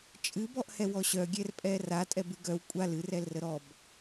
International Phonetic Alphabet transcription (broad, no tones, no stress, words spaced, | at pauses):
t͡ʃʼɨbɔʔhɛ wɔɕœɡʲɛrpʼɛ ra tʼɛbɨɡœw kʷʼal ɨrɛlrə ɾɔb